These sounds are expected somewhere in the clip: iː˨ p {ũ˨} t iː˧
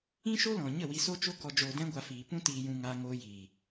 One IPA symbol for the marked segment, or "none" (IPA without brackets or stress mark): ũ˦